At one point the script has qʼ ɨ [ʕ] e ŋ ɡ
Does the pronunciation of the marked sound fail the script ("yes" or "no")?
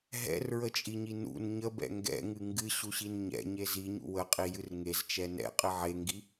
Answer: no